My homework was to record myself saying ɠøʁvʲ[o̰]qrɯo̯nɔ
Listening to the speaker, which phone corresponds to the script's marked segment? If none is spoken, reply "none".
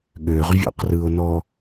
o̰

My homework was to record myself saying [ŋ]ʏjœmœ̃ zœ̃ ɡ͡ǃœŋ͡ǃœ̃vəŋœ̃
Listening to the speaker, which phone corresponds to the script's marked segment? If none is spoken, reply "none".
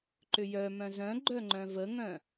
ǃ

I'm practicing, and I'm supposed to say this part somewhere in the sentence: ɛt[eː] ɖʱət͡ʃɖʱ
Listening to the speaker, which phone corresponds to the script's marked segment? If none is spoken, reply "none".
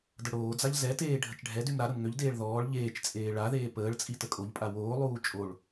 eː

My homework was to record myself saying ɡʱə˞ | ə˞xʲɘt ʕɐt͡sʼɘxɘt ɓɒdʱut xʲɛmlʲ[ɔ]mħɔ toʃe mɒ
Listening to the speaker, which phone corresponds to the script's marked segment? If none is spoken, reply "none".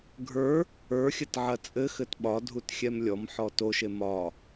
ɔ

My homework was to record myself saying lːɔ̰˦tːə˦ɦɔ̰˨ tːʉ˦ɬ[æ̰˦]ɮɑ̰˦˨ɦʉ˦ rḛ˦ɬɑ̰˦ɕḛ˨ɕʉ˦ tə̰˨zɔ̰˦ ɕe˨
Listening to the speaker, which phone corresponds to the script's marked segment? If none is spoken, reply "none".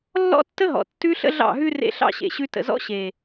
ə̰˦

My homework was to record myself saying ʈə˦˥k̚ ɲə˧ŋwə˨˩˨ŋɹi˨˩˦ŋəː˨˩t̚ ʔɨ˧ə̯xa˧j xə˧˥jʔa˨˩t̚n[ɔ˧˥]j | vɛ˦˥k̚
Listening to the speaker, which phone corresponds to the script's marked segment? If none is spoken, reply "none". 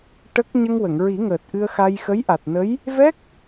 ə˧˥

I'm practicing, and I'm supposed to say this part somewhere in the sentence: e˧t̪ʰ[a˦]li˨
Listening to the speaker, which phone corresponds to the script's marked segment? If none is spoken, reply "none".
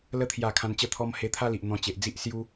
a˦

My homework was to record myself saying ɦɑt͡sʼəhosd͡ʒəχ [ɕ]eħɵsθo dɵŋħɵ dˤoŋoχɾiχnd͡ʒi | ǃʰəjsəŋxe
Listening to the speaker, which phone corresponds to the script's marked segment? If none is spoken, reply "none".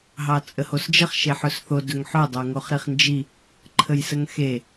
ʃ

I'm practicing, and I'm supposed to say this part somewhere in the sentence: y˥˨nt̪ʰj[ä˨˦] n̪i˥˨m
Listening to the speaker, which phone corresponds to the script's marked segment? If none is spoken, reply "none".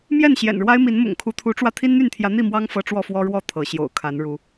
ä˨˦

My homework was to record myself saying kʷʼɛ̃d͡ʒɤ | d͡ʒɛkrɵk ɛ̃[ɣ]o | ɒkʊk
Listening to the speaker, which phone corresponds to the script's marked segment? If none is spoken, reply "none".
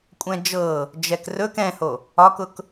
h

